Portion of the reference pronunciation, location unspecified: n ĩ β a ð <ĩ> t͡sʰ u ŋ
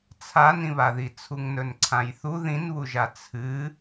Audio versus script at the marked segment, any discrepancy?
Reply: yes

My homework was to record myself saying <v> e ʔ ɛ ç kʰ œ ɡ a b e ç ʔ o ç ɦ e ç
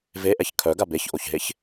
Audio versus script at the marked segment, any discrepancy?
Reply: no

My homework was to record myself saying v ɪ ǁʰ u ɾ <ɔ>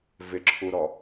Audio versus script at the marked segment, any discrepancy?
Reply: no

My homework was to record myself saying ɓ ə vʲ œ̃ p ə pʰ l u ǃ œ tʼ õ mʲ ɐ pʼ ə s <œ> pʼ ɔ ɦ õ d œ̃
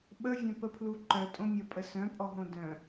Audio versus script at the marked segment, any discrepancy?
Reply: yes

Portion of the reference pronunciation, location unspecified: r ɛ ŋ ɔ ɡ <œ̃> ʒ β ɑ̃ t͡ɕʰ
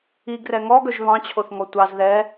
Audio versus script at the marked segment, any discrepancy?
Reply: yes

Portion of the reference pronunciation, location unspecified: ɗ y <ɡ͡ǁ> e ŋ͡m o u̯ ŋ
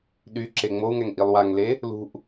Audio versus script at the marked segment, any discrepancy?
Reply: yes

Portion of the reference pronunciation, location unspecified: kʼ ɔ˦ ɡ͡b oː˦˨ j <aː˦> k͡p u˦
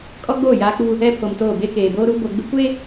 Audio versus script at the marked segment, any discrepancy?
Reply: no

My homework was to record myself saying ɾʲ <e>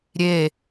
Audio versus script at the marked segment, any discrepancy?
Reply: no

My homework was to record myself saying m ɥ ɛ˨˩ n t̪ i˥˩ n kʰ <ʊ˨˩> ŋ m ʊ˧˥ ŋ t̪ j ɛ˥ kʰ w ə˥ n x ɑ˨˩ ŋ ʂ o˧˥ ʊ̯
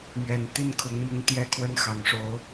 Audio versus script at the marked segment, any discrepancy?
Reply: yes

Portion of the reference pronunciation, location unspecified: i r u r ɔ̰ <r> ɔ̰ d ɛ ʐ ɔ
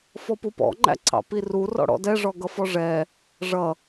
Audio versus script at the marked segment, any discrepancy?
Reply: yes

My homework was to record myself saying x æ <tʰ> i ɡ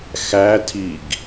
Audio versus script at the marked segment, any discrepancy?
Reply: no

